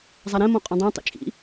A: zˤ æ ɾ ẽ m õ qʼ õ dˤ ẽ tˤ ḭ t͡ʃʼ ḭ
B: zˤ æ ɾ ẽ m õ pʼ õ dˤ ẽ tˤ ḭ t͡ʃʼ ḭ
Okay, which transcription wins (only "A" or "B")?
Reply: A